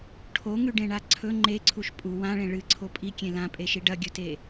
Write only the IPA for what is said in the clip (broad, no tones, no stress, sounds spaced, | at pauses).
ʈʰ o ŋ ʉ ɖ ẽ ɳ a ǀʰ ɵ ŋ͡ǃ e ǀʰ u ʃ pʼ u w ã ɭ ẽ ɭ ɨ ǀʰ o pʼ i kʲ ẽ l ã pʼ e ʃ i ɖ ɐ ɡʲ ɵ t e